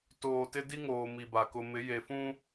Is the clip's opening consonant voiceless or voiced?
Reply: voiceless